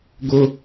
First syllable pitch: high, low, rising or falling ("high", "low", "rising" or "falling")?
high